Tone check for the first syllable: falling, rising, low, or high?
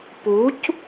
rising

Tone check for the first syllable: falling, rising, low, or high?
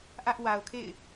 high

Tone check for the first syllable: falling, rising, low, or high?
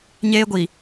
high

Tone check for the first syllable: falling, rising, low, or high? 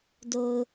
low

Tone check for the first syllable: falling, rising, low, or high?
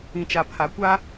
low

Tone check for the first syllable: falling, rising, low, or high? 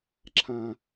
low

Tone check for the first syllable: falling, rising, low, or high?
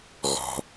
low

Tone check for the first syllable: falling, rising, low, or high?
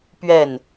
falling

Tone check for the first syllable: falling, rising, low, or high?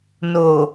low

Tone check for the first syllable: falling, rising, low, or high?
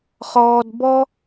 high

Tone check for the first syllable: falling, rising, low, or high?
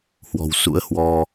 low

